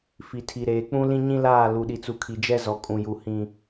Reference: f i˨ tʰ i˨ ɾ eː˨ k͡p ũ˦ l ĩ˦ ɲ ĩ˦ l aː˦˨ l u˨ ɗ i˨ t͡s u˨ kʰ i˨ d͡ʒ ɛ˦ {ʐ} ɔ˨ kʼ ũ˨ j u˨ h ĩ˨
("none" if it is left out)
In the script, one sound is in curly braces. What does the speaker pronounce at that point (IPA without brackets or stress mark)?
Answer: z